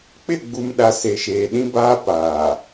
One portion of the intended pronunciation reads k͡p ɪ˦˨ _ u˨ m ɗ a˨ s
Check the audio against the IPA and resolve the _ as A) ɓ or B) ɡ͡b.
B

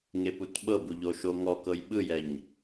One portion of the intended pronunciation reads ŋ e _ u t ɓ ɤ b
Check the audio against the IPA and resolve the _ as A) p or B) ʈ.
A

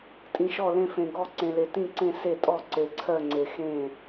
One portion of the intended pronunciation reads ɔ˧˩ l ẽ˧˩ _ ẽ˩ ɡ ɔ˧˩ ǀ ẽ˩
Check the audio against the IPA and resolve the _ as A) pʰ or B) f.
B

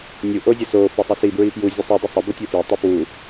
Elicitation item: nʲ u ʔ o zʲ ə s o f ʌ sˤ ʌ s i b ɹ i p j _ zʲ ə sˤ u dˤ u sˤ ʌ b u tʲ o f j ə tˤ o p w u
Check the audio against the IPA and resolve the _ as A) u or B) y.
A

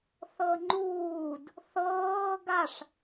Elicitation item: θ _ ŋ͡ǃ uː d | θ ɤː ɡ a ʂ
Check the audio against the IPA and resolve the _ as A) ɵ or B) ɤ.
B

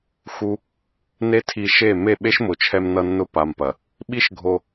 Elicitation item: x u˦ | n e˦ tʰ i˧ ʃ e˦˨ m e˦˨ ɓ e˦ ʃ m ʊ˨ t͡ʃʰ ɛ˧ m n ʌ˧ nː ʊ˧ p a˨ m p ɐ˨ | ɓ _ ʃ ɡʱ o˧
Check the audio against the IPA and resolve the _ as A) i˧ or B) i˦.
B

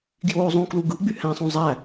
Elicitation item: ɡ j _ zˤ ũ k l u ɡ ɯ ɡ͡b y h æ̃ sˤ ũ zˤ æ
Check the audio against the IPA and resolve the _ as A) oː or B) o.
A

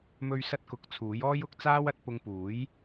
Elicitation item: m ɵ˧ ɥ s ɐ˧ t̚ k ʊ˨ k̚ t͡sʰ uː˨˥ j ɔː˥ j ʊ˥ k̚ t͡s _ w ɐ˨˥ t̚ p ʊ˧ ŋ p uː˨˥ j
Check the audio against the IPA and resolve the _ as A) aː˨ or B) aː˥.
B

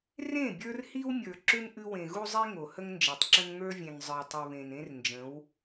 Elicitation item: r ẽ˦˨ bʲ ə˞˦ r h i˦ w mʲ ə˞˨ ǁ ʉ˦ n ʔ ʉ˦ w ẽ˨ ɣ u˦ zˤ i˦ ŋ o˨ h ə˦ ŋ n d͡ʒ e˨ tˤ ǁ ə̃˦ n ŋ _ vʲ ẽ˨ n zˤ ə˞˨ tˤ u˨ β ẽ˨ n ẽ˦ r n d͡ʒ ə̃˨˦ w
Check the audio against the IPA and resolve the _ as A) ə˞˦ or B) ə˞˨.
A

